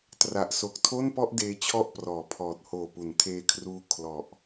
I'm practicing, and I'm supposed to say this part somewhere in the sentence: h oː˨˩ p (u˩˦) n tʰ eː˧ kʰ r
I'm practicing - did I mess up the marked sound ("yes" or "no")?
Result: no